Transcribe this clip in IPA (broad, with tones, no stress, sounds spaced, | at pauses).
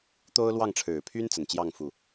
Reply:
t̪ o˦ ʊ̯ l w ɑ˥˨ ŋ ʈ͡ʂʰ ɻ̩˨˩ pʰ y˦ n t͡s ə˨˩ n t͡ɕ j ɑ˥˨ ŋ f u˨˩